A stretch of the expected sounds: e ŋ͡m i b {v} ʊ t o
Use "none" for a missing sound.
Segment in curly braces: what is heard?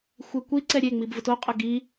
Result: v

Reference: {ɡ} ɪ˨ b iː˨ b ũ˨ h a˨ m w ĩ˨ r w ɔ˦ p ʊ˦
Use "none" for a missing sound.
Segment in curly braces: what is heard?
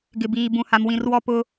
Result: ɡ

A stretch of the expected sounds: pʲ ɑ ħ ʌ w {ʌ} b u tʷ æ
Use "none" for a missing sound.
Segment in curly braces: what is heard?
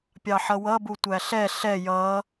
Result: ʌ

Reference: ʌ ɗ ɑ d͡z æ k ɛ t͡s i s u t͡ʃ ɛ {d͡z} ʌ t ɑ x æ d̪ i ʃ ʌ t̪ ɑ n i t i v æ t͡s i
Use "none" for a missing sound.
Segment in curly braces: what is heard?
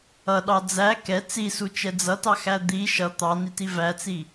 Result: d͡z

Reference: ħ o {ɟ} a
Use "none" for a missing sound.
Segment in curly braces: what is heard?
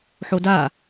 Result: d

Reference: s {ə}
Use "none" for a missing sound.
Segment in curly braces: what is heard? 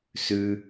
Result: ʉ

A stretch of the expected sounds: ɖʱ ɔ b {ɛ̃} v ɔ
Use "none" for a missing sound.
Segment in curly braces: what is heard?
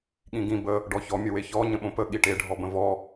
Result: ə̃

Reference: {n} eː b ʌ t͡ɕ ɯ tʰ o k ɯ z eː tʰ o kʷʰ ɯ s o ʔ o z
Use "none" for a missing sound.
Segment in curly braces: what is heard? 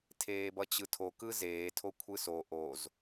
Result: tʰ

